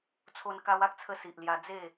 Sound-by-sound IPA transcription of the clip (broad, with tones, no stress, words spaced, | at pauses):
t͡sʰo˧n ka˧wa˦k̚t͡sʰə˧ si˨ʔlja˧ d͡ze˥˧